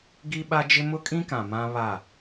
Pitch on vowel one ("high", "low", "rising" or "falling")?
high